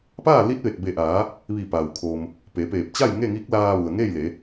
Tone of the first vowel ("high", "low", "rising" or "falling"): falling